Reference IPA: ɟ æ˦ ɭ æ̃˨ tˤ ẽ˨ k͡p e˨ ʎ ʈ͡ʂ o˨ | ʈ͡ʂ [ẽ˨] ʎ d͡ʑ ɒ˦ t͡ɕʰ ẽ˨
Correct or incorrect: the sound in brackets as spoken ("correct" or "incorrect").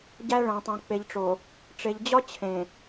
incorrect